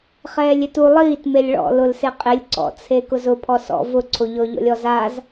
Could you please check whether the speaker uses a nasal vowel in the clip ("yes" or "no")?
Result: no